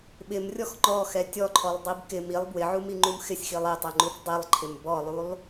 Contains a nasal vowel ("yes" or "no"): no